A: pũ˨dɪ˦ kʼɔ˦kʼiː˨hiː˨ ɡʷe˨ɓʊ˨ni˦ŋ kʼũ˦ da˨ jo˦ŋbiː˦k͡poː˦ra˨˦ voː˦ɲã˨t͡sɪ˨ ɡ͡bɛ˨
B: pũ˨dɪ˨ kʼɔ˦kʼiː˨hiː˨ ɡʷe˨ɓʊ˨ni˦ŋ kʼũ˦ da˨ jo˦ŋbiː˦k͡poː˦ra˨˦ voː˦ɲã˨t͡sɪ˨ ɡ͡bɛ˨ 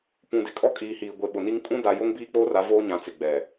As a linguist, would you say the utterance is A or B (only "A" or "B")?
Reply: B